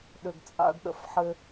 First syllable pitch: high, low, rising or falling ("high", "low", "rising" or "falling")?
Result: low